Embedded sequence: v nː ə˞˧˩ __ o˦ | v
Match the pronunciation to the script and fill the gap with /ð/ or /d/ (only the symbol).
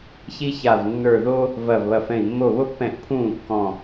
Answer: ð